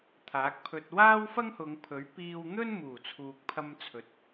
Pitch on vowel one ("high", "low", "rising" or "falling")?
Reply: rising